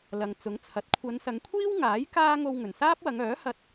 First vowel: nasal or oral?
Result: oral